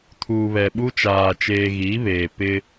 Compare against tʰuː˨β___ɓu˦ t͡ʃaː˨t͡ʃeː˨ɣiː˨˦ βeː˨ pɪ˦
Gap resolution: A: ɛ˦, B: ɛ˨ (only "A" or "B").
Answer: B